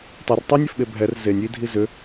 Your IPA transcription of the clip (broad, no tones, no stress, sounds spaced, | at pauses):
tˤ ɛ r tˤ y nʲ ɛ f ɓ e bʱ ɛ r z e nʲ i dʱ i z ʏ